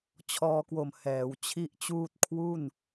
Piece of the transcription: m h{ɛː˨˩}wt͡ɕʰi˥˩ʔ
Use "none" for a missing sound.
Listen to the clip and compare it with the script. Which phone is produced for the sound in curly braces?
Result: ɛː˩˦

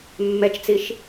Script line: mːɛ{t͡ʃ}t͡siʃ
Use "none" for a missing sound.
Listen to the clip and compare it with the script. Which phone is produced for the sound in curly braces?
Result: t͡ʃ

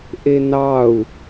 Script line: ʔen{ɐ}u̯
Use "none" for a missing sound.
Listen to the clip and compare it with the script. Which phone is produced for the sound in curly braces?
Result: ɑ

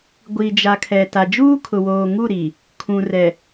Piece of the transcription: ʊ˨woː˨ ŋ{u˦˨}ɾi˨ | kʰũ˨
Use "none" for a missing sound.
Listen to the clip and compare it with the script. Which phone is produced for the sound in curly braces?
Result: u˦˨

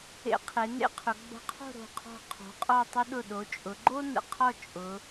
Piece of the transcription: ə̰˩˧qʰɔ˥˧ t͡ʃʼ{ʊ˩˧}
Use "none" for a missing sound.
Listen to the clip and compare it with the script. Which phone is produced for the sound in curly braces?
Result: ʊ˩˧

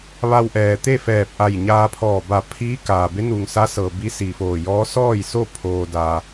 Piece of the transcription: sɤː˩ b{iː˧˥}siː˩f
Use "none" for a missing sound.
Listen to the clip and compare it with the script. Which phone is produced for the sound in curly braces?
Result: i˧˥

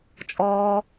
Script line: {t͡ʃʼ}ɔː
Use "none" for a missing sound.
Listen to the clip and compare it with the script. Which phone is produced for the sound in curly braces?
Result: t͡ʃʼ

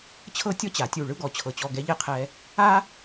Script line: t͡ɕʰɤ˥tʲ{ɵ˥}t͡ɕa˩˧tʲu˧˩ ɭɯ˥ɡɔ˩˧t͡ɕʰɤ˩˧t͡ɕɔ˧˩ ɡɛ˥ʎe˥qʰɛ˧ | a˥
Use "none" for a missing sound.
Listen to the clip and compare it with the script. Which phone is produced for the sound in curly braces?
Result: ɔ˥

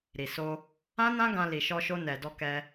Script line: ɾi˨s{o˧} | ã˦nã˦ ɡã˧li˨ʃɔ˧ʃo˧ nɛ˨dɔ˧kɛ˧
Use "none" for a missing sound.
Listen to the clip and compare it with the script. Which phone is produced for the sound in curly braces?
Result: o˧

